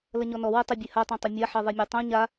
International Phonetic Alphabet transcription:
lɐɲɔnɔwɜ tˤɛbʲeha tˤẽtˤomʲaħɜ ðˤemʲɔtˤõ ɲa

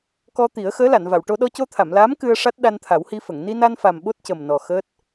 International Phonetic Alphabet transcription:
kɔ˧ t̪i˨˩˦ə̯xəː˧˥ la˨˩˨nva˨˩˨wʈo˧ ɗɔ˧co˧t̪ʰa˨˩˨mlaː˧˥m kɨ˧ə̯ʂa˦˥t̚ ɗa˧nt̪ʰa˨˩˦whi˧fə˨˩˨ŋ ni˧na˧nfa˨˩m ɓo˦˥t̚cə˨˩mnɔ˨˩ xəː˦˥t̚

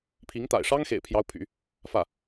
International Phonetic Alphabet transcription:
pʰi˧˥ŋt̪a̰˨˩ɪ̯ ʂɑ˥ŋxḛ˨˩ɪ̯pʰjɑ˧˥ʊ̯pʰy̰˨˩˦ | fä˥˩

